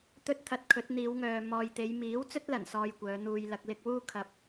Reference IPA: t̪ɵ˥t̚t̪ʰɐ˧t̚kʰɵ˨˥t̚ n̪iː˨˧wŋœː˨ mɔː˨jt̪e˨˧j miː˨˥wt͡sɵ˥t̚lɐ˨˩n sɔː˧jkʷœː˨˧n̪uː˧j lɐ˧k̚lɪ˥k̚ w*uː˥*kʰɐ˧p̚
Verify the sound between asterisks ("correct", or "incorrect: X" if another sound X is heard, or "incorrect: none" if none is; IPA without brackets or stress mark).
correct